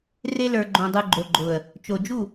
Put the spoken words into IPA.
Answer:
r e˧ l ə˞˨ ɡ͡ǃ õ˨ dˤ ɯ˨ ɡ͡ǃ o˨ ɡ͡ǃ ʊ˨ ə̯ | t͡ʃ o˨ d͡ʒ u˦˨

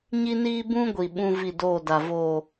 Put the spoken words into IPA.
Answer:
ɲ i˦ n iː˦ b ũ˦ ɡʷ i˨ ɓ ũ˦ v i˦˨ d oː˦˨ d a˨ v oː˨

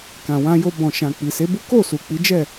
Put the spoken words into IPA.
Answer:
k ã˨ w ã˧ j o˧ b ɔ̃˨ ʃ ã˨ k͡p i˨ s e˨˦ b u˦ k o˦˨ s u˨ k͡p i˨˦ d͡ʒ ɛ˦˨

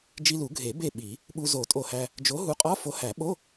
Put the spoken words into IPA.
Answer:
d͡ʒ i˧ l u˨˩˦ ɡʱ e˨˩˦ b e˧˩ ɓ i˨˩˦ | ɓ u˧ z o˨˩˦ tʼ o˧˩ h æ˧ | d͡ʒ o˨˥ ɦ u˨˥ qʼ ɒ˧˥˧ f o˨˥ h æ˨˩˦ ɓ o˧˥˧

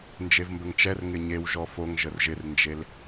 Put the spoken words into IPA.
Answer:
n d͡ʒ e v m b ə ŋ t͡ʃ ɛ r ŋ ɪ ɲ e w ʒ ɔ f o ŋ ʒ ə r ʒ ɪ r n d͡ʒ e l

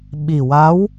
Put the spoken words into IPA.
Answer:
ɓ i˨˩ w a˧˥ w

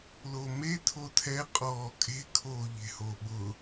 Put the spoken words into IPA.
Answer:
l o m e tʰ o tʰ ɛ qʼ ɔː kʼ e̤ kʰ oː ʎ e̤ h o ɓ ʊ

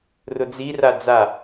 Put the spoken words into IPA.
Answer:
r ʊ d͡z i r a d͡z a

